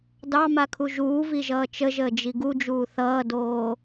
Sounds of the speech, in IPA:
dɑmakʰu ʒuːviʒʌː t͡ʃəʒəːd͡ʒi ɡud͡ʒuː θʌːdoː

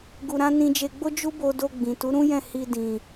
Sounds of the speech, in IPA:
ɡu˧ɾã˦ nĩ˧ d͡ʒe˧ɡ͡bo˦ d͡ʒu˦bo˧do˧ ɡ͡bĩ˨ tu˨˦ɾũ˦jɛ̃˦˨ hi˧ dĩ˨

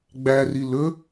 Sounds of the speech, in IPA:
ɡ͡bæri lɵ

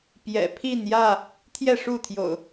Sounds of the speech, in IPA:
pjɛ̰˨˩pʰi˥˨njä˥˨ | t̪ʰjɛ˥˨ʂu˥˨t̪ʰjo̰˨˩ʊ̯

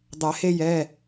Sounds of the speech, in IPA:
dˤɛ˨˩˦he˦jɛ˩˧˩

